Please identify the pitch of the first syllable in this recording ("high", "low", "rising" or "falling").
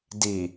low